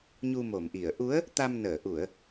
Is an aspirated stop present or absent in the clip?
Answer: absent